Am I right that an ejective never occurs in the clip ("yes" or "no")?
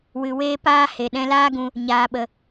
yes